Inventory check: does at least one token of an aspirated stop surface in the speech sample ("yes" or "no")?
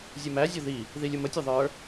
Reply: no